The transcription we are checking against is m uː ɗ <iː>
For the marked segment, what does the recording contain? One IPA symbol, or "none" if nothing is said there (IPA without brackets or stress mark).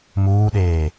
eː